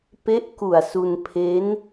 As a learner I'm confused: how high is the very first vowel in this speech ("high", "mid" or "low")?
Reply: mid